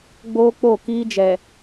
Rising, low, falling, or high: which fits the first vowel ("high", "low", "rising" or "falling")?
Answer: high